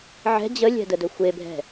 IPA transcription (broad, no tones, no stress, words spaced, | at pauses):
ʕɛ̤ d͡ʑəlʲɛ̤dədɵ xʷebʱɛ̤